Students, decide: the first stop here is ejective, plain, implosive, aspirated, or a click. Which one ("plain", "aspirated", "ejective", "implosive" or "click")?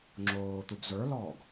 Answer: click